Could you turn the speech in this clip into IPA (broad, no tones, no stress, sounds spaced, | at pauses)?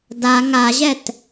d a ŋ a ʑ ɛ t